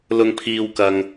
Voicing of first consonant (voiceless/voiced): voiced